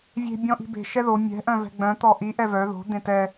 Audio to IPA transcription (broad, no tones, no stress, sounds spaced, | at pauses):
vʲ e̤ bʲ ɔ̃ ʔ i̤ b e̤ ʃ ɛ ð o mʲ ɛ̤ ʔ œ̃ v ɛ̤ ɡ͡b œ̃ t̪ ɔ ʔ i ʔ ɛ v œ ð o̤ d̪ ẽ t ɛ